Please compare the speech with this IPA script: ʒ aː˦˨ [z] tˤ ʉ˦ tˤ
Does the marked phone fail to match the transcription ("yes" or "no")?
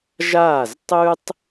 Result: no